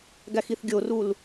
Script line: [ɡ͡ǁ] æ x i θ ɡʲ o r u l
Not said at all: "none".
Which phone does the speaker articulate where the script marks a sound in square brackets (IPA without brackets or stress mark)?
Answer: ɡ